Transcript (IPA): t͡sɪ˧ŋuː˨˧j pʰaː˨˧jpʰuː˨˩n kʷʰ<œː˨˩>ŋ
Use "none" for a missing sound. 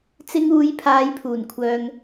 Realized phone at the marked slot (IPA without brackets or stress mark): œː˨